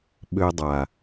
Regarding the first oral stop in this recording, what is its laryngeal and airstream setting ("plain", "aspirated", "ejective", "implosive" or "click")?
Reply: implosive